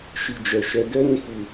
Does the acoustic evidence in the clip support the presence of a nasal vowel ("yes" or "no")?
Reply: yes